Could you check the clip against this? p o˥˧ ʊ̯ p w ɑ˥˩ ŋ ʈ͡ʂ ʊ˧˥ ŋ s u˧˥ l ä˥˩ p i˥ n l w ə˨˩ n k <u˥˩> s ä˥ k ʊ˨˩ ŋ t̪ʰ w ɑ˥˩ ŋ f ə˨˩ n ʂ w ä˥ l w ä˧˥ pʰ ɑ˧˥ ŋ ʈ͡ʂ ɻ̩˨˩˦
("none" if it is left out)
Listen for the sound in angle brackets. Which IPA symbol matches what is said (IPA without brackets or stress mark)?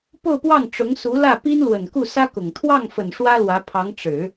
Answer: u˥˩